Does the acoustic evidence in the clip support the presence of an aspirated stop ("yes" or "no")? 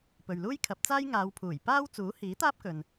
yes